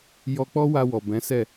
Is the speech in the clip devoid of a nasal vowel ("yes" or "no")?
no